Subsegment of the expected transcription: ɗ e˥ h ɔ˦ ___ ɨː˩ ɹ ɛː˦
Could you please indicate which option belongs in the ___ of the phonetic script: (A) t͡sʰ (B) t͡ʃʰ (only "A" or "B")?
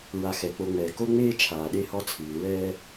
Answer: A